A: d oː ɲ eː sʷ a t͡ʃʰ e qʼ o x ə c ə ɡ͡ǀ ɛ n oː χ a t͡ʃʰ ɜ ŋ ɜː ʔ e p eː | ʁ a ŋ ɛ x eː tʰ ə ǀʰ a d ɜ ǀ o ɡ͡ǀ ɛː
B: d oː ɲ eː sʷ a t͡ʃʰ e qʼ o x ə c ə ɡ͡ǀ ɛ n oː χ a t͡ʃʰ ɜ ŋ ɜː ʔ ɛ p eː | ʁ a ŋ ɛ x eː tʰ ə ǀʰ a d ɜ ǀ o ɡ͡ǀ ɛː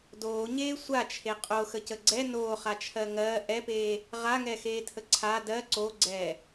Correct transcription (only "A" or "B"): B